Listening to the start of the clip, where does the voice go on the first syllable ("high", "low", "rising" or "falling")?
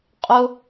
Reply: high